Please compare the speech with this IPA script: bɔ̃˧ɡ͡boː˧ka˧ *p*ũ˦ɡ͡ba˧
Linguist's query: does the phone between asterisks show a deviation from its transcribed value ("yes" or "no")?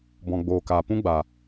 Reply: no